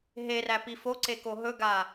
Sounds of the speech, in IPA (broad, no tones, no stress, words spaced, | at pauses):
ɦeræ pifoǀe koɦɵɡa